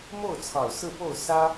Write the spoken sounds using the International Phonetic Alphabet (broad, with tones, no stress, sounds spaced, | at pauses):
m o˥˩ ʊ̯ t͡sʰ ɑ˨˩ ʊ̯ s ɹ̩˥˧ p o˥˩ ʊ̯ s ä˥